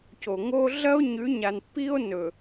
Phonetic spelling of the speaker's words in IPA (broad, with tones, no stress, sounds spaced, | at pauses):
c o˨ ŋ o˦ ɮ ɐ˦ o̯ ɲ ʉ˨˦ ɲ a˨ n pː i˦ o̯ n ɵ˨